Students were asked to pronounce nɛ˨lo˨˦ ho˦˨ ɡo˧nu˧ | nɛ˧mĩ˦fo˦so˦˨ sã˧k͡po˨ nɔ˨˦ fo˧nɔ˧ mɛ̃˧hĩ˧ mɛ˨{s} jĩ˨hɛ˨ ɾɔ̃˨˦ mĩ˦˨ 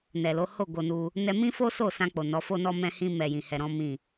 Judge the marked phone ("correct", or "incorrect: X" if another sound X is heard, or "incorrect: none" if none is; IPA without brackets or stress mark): incorrect: none